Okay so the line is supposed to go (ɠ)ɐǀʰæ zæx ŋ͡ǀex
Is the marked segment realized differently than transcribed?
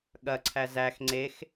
no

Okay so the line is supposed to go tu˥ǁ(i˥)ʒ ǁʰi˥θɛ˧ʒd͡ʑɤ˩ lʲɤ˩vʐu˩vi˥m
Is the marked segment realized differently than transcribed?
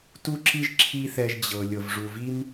no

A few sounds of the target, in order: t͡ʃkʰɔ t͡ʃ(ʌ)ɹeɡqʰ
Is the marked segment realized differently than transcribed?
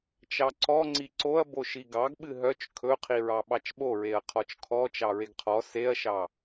yes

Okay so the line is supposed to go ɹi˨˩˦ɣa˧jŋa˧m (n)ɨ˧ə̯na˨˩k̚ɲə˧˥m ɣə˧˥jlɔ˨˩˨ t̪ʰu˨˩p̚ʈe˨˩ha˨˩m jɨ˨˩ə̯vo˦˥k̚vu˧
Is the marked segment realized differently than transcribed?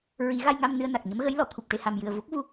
no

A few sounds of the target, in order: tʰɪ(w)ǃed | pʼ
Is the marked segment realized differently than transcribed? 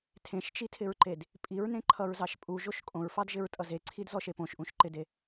yes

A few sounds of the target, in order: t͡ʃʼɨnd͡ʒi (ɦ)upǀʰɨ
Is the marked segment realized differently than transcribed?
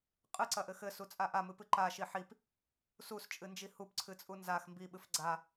yes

